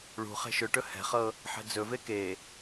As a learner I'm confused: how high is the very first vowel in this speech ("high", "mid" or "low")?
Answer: high